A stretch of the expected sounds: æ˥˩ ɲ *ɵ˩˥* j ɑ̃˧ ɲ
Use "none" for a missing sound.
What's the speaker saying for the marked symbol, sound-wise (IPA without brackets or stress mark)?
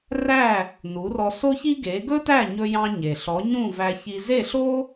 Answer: ɵ˧